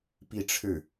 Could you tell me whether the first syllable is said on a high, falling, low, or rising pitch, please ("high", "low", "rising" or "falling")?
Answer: falling